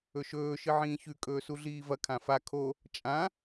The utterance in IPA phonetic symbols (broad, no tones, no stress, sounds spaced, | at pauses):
ɵ ʃ ɵː ʃ ɨ ʕ ĩː ç ʉ kʼ ɵː s u ɮ iː v ɐ kʰ ã f a kʰ o | t͡ʃʼ ã